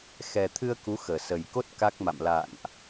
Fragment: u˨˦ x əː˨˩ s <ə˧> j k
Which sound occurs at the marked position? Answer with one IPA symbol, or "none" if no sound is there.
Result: ə˨˩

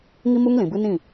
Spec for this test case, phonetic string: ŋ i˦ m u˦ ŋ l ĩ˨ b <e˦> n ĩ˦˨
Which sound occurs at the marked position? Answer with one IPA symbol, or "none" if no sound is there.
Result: ɨ˦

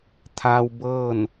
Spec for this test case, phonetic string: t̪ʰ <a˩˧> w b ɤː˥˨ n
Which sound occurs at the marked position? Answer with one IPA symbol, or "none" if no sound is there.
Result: a˧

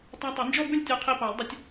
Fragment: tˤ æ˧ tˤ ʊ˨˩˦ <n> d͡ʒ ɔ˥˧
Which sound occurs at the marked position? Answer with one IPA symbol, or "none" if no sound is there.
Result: n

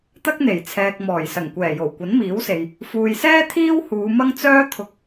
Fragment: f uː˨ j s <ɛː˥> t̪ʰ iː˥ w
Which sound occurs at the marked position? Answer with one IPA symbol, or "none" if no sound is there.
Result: ɛː˥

